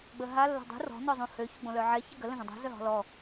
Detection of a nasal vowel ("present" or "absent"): present